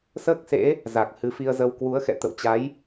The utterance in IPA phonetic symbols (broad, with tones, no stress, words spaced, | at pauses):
səː˦˥k̚sḛ˧˥ | za˨˩k̚hɨ˨˦fi˧ə̯zə˧w kwu˨˦ə̯xɛ̰˧˨ t̪ə̰˧˨wt͡ɕa˨˦j